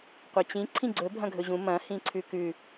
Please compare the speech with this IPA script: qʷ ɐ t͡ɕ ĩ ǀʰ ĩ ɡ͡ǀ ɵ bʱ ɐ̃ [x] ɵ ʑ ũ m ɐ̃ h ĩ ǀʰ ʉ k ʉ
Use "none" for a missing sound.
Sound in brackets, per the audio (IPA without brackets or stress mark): ɡʱ